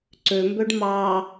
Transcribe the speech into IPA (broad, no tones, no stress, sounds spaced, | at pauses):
ǀ ø m b ø ɖ m ɑ